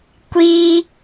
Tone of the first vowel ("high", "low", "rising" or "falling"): high